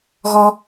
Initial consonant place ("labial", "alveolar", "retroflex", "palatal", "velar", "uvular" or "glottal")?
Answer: velar